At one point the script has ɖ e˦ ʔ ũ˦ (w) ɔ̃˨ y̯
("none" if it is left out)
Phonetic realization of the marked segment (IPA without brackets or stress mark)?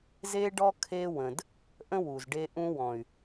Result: w